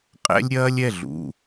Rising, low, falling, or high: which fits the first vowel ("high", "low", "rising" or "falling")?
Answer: high